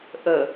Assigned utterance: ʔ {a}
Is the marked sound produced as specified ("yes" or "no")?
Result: no